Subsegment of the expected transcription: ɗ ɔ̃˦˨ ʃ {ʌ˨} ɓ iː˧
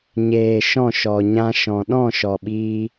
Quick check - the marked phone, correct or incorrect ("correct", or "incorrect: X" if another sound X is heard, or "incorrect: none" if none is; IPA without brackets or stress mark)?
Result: incorrect: ɔ˨